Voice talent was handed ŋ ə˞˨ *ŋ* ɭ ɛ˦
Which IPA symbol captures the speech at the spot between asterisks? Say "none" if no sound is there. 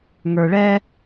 none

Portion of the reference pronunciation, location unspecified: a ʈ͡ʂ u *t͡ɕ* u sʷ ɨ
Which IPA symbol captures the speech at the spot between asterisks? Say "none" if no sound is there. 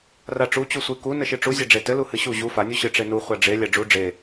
t͡ɕ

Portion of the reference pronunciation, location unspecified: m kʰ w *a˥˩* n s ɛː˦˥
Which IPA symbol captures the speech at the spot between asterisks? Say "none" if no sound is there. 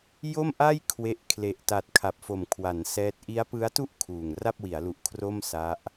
a˩˦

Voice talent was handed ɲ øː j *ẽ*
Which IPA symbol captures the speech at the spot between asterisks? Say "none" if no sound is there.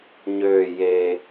e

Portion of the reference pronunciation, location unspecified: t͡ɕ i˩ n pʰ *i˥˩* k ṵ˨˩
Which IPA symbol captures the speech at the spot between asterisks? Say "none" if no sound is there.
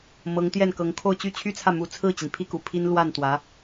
i˥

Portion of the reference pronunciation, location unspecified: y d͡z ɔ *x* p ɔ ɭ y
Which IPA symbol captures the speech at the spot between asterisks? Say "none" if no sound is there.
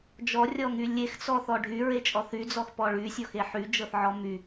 x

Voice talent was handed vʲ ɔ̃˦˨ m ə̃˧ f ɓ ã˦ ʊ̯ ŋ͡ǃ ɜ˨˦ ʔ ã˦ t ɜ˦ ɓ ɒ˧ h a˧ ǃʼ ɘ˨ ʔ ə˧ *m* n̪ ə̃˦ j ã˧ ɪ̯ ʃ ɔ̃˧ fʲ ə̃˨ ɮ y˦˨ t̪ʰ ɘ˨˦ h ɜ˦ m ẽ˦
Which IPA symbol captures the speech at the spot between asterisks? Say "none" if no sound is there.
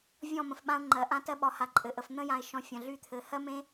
f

